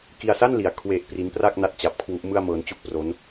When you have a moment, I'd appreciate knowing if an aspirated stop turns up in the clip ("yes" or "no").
yes